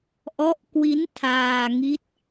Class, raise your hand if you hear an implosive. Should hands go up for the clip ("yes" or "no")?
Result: no